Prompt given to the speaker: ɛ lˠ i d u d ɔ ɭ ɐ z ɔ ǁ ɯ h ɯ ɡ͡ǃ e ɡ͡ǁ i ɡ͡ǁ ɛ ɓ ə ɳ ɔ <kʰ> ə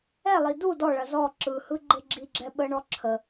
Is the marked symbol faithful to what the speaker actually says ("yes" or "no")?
no